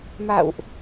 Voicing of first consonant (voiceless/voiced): voiced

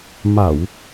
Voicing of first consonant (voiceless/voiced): voiced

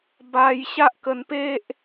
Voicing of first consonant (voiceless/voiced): voiced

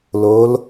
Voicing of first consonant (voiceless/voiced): voiced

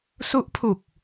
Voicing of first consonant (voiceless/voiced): voiceless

